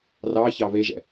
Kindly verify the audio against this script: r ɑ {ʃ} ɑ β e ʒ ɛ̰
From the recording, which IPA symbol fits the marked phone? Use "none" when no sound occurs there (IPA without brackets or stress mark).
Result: ç